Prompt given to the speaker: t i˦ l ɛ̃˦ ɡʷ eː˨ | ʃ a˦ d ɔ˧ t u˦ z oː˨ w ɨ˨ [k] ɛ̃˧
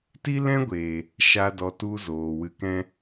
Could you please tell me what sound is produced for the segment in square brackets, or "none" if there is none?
k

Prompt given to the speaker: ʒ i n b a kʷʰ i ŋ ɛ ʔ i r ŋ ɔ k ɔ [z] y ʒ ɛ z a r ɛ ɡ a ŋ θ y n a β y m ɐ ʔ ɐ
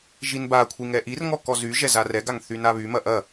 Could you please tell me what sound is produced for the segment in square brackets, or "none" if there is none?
z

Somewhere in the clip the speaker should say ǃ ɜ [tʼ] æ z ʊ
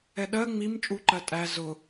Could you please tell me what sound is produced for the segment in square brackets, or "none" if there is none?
tʼ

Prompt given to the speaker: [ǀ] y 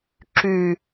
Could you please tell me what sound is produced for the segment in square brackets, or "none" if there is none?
ǁ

